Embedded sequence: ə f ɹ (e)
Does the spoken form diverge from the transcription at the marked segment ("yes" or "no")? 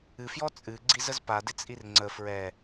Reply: yes